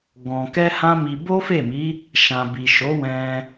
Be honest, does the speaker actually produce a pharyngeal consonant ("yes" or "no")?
no